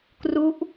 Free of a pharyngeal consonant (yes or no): yes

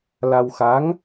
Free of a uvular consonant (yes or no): yes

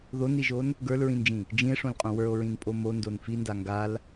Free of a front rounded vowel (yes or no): yes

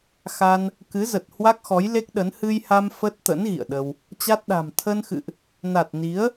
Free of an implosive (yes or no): no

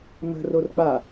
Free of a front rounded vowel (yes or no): yes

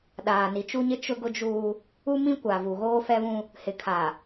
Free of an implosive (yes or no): no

